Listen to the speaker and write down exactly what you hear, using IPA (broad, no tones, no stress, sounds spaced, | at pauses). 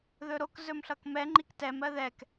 ð ɵ ɾ o k z ɵ m ɬ ʌ k m ɛ ŋ͡ǃ i k t ɛ m ɜ ð ɛ k